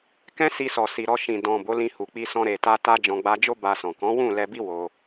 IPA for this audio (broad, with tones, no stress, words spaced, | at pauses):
kɛ̃˦si˧sɔ˨si˨ ɾɔ˧ʃĩ˨ dɔ̃˨ bo˨˦lĩ˧ hu˨k͡pi˧sɔ̃˧ ɾe˨ta˧ ta˧ d͡ʒɔ̃˨ɡ͡ba˧d͡ʒo˦ ba˧sɔ̃˨ kɔ̃˨˦wũ˦˨lɛ˧bi˦ wo˧